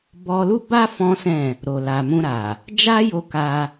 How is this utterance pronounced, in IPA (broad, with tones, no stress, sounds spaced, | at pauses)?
b ɔ˧ l u˦ b a˦ f ɔ̃˦ s ɛ̃˦˨ | ɾ o˨ l a˨ m ũ˧ ɾ a˨ | d͡ʒ a˦ j o˧ k a˧